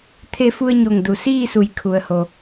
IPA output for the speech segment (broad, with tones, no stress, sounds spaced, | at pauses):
t̪ʰ e˧ f u˧ ə̯ ɲ o˧˩ ŋ d u˩˧ s iː˥˨ s u˩˧ j kʰ u˩ ə̯ h o˩